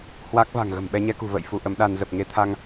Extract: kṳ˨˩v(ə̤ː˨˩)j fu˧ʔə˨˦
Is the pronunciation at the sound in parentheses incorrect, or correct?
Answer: incorrect: ə̰ː˧˨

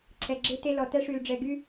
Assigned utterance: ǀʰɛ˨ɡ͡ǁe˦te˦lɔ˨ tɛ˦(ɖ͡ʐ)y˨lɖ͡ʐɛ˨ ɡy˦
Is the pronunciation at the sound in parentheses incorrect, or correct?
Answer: incorrect: ʂ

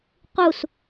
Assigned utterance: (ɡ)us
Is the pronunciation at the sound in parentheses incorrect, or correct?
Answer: incorrect: q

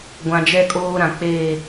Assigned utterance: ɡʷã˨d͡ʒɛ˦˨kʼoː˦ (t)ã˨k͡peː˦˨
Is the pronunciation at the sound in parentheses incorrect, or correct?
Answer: incorrect: ɾ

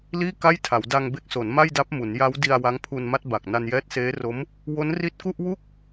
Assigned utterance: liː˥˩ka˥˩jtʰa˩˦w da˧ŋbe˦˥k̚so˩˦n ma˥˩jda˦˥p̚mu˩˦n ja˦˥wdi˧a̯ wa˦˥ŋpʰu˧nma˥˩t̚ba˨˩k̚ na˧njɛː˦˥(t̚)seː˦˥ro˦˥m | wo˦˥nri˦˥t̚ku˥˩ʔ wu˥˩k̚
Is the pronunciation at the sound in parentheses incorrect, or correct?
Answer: correct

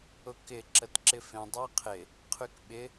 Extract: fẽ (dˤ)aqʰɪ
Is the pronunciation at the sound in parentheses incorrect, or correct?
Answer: correct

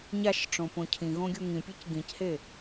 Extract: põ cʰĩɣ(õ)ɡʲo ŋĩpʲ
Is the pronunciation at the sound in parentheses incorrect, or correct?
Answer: correct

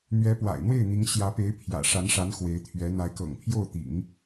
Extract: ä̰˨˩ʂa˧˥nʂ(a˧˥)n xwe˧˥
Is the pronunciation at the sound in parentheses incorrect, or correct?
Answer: correct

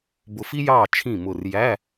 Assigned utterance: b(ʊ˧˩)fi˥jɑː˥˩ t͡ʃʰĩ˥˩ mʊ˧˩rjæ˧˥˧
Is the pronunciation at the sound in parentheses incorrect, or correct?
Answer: correct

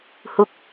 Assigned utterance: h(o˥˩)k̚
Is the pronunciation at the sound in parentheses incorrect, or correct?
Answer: incorrect: u˥˩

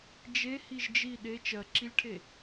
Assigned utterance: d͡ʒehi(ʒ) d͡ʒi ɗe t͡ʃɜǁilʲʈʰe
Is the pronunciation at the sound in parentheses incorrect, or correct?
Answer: correct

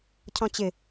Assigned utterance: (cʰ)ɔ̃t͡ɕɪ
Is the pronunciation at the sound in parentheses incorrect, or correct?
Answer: correct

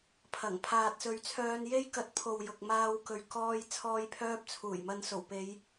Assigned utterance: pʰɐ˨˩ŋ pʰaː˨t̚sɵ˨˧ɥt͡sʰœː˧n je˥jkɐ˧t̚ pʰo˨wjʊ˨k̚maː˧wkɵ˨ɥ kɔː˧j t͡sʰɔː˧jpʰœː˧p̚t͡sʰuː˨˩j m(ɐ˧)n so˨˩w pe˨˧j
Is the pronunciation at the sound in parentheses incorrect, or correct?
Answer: correct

